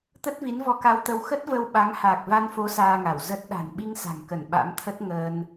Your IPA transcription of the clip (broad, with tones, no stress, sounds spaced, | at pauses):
t̪ ə˦˥ t̚ v i˨˦ n v ɔ˧ k a˧ w t̪ ə˧ w x ə˦˥ t̚ v ə˧ w ɓ a˨˦ ŋ h aː˨˩ k̚ v a˧ n f o˨˦ s aː˧ ŋ a˧˩ w z ə˦˥ t̚ ɗ a̤˨˩ n ɓ i˧ ŋ s a̤˨˩ ŋ k ə˧˩ n ɓ a̰˧˥ m t̪ʰ ə˦˥ t̚ ŋ əː˧ n